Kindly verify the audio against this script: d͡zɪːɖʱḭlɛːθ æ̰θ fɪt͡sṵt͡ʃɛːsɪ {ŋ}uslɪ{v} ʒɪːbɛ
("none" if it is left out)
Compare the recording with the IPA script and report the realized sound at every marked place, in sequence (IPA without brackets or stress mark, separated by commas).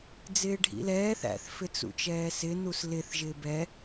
n, θ